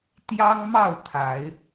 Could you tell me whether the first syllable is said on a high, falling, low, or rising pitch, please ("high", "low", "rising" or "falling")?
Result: high